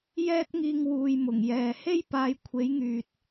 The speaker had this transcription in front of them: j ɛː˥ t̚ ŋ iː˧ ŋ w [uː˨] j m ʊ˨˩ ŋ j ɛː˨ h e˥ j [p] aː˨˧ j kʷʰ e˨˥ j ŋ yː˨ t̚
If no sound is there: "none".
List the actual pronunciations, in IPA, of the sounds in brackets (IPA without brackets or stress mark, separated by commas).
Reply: uː˨, p